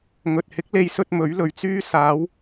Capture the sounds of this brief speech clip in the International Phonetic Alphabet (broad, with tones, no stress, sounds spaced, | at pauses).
ŋ ɵ˨ t̚ h ɪ˨˥ k̚ l e˨˧ j s ɵ˧ t̚ m ɵ˨˥ ɥ l ɵ˨ ɥ t͡s yː˥ s aː˨˧ w